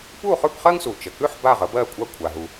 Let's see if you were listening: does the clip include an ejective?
yes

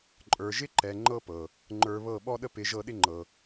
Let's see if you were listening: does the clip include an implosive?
yes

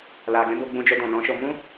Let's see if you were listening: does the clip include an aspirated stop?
no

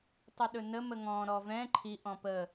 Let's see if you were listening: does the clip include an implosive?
yes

